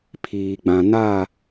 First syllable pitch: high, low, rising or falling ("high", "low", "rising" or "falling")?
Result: low